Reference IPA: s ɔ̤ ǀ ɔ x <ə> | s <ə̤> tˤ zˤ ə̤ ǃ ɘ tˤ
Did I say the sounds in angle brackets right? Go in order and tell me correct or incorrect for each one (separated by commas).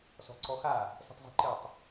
incorrect, correct